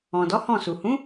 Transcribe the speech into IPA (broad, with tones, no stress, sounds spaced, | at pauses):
ɔ̃˨ d ɔ˨˦ h ɔ̃˦˨ s u˨ h ũ˨˦